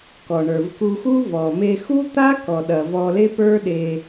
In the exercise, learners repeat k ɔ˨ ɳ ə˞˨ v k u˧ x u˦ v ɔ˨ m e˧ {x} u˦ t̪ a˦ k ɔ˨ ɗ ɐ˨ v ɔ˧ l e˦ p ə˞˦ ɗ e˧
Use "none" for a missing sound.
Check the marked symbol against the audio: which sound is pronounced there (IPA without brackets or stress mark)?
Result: x